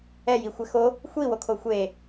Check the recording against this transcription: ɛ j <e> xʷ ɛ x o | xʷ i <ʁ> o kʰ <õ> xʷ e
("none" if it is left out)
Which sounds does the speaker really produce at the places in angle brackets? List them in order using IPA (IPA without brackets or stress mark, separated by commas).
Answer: i, w, o